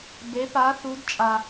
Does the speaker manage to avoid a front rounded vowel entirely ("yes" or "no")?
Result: yes